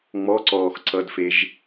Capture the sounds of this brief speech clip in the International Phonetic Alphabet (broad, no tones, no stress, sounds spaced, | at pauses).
ŋ͡m ɔ ǀ ɔː x ǀ ʌ d f e ʒ